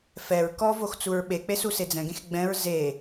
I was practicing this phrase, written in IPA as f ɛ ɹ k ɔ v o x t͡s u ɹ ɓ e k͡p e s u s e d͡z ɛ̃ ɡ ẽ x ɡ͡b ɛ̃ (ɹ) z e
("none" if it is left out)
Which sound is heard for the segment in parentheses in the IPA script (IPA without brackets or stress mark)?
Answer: ɹ